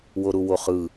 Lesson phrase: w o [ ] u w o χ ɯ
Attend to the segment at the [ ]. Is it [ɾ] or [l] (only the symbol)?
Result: ɾ